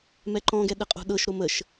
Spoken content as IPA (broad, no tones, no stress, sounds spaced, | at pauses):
m ɛ ǃ ɔ̃ ɡ ɛ ɗ ə qʼ o̤ ɗ ɤ ʃ ɾ o m ə ʃ